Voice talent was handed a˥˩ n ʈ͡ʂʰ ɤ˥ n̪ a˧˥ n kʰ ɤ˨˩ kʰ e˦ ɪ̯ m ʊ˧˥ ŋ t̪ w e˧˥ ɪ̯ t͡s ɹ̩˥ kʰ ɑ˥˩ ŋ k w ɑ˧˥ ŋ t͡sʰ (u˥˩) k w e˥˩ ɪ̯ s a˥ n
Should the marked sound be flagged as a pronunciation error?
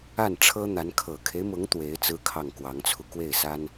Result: yes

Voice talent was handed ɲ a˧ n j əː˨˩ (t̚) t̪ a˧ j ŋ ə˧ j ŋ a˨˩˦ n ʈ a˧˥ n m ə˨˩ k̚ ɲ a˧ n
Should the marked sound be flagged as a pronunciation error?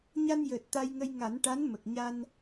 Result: no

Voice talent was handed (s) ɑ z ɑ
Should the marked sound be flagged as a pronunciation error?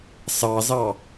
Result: no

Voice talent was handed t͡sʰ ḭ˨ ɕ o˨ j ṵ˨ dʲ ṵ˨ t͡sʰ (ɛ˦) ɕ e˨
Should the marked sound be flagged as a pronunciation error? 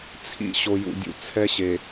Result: no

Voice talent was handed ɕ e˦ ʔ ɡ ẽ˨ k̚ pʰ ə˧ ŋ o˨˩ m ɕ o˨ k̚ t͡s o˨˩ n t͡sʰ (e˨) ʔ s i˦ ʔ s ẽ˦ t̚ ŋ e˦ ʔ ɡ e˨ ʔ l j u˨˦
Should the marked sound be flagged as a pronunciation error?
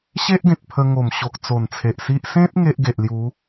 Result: no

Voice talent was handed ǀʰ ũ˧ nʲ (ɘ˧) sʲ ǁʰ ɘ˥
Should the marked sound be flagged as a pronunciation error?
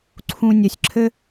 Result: no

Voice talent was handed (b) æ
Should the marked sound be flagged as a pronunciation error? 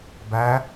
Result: no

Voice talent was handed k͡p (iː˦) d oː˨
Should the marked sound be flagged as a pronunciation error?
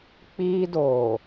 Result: no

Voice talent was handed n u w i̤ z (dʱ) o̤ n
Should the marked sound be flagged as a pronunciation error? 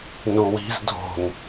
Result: no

